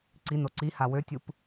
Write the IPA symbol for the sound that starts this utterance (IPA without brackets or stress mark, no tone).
ǀ